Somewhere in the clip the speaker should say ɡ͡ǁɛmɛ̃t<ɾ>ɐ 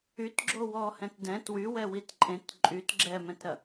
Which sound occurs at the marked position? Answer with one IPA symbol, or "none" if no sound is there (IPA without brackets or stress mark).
ɾ